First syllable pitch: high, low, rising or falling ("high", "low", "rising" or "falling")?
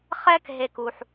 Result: high